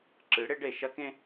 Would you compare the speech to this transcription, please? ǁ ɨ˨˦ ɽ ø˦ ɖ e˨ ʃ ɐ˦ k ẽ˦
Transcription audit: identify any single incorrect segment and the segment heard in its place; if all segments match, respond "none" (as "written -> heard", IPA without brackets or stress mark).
ø˦ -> e˦